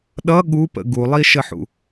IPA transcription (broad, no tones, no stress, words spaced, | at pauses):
ɗʌ ɠupə̰ ɡulˠiʃəħṵ